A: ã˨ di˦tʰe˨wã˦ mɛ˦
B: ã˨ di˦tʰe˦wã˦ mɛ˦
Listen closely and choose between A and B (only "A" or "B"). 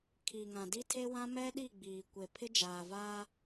B